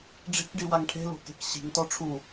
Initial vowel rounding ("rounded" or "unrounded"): unrounded